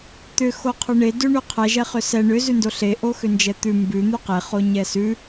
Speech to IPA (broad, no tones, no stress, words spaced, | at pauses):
t̪ʏ xoqʰʉɳe dʉɳʉqʰɛ ʒɛχʏsɛ ɳʏ zʉndoɬe ʔoxʏnd͡ʒɛt̪ʉ mbʉ n̪ʉqe χoɲɛsʉ